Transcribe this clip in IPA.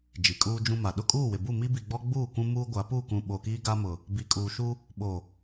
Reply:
d͡ʒi˨kʼuː˦d͡ʒũ˦ma˨ ɗʊ˦˨kʼuː˦˨wɪ˨bu˦˨ mi˦bi˨ɡ͡bɔ˦ ɡ͡buː˦˨ kʷũ˦muː˦ɡʷa˨˦ pu˦˨kũ˨ɓo˨kiː˦ ɡa˦mʊ˨ | bi˨kʼuː˨ʃu˦ | ɓo˨

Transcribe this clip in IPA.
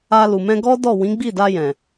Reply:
a˧lu˨ mɛ̃˧ɡɔ˦dɔ˦˨ wĩ˨˦ɡ͡bi˦˨da˧ jɛ̃˨

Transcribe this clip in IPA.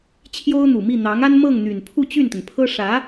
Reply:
t͡ɕʰjo˥ʊ̯n̪u˨˩mi˥˩ n̪ɑ˧˥ŋa˥n mɤ˥˩ŋn̪y˨˩n pʰu˥˧t͡ɕy˥˩nt̪ə˩npʰɤ˥ ʂä˧˥

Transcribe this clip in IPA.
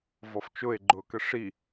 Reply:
vɔft͡ʃʊe̯ɡ͡ǃʊːkə ʂi

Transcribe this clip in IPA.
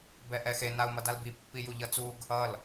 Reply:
bɛʔɛxe nau̯mʌdalbi pːijuʎʌt͡suɡ | ʌl

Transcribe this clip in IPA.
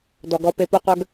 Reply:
dɔ˨ɡɔ˧pe˧ po˧qʷœ˧ɡ

